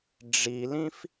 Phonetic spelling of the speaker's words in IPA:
ɖ͡ʐ i l ĩ f

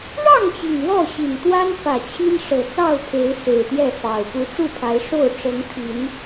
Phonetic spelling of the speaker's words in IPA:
ɻ ɑ˥˨ ŋ t͡ɕ i˩ ŋ w ɔ˥˨ ɕ i˨˩ n t̪ w a˦ n f ä˨˩ t͡ɕʰ i˦ n ʂ ɤ˨˩ t͡s ɑ˥˨ ʊ̯ pʰ e˨˦ ɪ̯ s e˨˩ ɪ̯ t̪ j ɛ˥˨ f ɑ˨˩ ʊ̯ p u˨˦ ʈ͡ʂ u˥˨ pʰ a˨˦ ɪ̯ ʂ o˥˨ ʊ̯ ʈ͡ʂ ɤ˨˦ ŋ t̪ʰ i˨˦ n

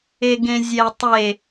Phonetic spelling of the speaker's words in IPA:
e ɡ ẽ zʲ ɛ tˤ e

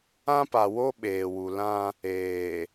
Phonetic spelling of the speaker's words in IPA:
ã˦ p a˨ w o˦ ɓ eː˨ w u˨ l ã˦ | eː˨

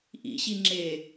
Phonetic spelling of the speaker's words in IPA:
ʔ ḭ ɕ i ŋ͡ǁ e

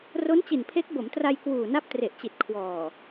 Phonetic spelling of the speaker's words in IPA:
r o˦˥ n t͡ɕ i˨˩ n pʰ e˦˥ k̚ b o˩˦ m t r a˧ j k w uː˨˩ n a˦˥ p̚ t r e˨˩ ʔ t͡ɕ i˨˩ t̚ kʰ w ɔː˨˩

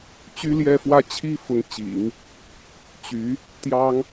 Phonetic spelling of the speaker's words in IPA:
t͡ɕ y˥ l j ɛ˥˧ f w ä˥˩ t͡ɕʰ i˥ f ʊ˧˥ ŋ t͡ɕ ḭ˨˩˦ ŋ | t͡ɕ y˧˥ | t̪ j ɑ˥ ŋ

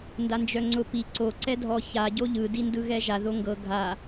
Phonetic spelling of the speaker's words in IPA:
n d a n d͡ʒ œ ŋ͡ǀ ʊ p i ǀ o ǀ ɛ dʱ ɔ ç a ɟ o ʎ ɯ d i n d ɯ ɣ ɛ ʒ a ð o ŋ ɡ ɤ ɡʱ a

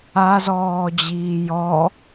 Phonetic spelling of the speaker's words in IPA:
a z ɔː d͡ʑ iː j ɔ

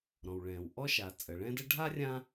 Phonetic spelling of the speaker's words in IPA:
ɾ ɔ̃˩ w ɭ ɛ̃ː˩ w ʔ ɔ˥ ʃ a˩ t͡sʼ ə˩ ɭ ɛ̃ː˥ d ə˥ ɖʱ a˥ rʲ ã˥

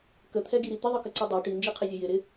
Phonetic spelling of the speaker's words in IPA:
k ə t̪ʰ ɛ ɡ i ɾ i t̪ ɪ ðˤ ɯ k ə ǀ ɯ dˤ ɛ ʈ i n d͡ʒ i qʰ ɪ zʲ ə j ɪ ɾ ɪ

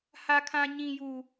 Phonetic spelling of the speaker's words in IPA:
h a˦ kʰ ã˦ ɲ ĩ˦ j u˦

